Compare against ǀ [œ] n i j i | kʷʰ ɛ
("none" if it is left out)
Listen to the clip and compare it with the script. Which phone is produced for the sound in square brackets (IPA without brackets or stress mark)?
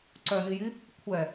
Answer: œ